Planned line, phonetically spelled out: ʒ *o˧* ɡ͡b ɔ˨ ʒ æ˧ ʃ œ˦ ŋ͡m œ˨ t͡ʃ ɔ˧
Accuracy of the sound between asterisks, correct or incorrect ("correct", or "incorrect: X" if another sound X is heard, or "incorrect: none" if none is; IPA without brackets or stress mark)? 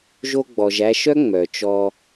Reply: correct